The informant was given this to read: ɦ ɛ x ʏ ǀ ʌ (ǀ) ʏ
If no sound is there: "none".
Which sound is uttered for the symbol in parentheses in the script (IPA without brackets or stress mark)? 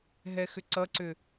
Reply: ǀ